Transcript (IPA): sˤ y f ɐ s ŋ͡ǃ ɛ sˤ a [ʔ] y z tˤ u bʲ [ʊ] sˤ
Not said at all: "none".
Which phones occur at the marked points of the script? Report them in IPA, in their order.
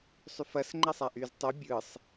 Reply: ʔ, ɯ

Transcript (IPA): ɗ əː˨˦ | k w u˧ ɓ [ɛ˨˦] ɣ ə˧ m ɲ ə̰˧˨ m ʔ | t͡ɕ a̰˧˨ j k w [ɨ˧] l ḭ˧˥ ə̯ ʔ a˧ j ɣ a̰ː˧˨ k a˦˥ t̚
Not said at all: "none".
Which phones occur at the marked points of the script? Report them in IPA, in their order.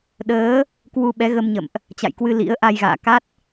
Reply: ɛ˨˦, ɨ˧

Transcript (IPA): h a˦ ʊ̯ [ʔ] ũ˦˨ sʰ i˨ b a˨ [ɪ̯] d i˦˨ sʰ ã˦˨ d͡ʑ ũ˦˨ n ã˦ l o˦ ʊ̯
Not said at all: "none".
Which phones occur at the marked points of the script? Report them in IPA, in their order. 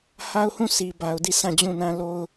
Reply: h, ʊ̯

